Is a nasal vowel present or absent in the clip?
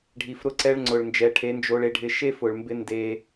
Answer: absent